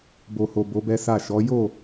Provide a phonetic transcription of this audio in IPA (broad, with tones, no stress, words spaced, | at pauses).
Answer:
bo˨ho˨ bo˨˦bɛ˦sa˦˨ ʃɔ˨˦ jo˦˨